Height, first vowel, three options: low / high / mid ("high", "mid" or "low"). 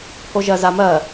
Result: mid